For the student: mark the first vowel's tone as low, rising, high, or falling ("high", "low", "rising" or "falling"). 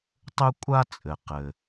high